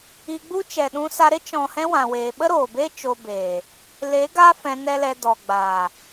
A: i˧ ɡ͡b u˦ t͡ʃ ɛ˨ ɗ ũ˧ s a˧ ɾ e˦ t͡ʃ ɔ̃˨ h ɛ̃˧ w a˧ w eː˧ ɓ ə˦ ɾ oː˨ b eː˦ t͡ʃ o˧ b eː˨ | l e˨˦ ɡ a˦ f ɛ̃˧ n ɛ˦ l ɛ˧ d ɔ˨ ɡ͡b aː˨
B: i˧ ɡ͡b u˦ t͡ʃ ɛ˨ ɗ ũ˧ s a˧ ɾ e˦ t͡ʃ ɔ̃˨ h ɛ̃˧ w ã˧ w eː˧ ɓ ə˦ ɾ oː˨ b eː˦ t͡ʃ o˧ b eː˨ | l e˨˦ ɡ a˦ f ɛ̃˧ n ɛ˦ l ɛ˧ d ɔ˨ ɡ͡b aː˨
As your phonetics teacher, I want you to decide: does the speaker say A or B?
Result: B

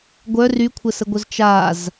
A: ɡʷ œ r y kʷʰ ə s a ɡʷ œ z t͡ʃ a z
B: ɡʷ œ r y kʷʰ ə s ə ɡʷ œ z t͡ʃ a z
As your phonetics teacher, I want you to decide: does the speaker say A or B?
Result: B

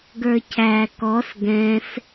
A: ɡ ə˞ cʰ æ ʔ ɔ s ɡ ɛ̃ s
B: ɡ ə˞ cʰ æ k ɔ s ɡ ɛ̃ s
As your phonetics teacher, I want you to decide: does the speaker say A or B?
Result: B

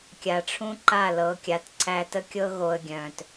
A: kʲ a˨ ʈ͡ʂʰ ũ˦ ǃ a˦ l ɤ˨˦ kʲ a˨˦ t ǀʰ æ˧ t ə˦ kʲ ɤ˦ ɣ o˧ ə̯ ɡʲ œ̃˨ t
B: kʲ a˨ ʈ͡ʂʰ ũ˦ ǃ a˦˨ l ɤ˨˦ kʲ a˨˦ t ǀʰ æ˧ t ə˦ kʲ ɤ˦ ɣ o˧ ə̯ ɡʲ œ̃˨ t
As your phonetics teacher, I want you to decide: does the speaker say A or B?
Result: B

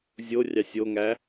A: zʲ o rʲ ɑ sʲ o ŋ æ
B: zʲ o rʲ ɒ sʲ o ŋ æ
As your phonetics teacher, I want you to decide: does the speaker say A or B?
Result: A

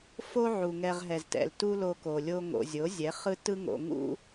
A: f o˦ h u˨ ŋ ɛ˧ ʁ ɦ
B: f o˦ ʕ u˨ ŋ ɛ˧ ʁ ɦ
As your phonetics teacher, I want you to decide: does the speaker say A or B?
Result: B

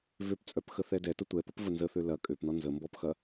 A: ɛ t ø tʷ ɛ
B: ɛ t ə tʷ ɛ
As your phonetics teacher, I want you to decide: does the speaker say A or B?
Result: B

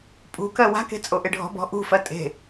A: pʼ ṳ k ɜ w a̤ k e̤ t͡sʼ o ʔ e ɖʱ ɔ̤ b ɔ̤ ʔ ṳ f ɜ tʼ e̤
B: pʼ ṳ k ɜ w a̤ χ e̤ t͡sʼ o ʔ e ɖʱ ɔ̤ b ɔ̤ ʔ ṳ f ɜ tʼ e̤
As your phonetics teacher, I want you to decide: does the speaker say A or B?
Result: A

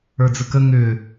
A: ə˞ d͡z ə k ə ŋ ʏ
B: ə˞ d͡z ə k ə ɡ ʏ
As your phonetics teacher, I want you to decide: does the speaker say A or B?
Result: A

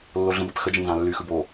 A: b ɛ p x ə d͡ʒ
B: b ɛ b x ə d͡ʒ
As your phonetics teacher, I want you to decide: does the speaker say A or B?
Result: A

